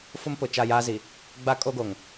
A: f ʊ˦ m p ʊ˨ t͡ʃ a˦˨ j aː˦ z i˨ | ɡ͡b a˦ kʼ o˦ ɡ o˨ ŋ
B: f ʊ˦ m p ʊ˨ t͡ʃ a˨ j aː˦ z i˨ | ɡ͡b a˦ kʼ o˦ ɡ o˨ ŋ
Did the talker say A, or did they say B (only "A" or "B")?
A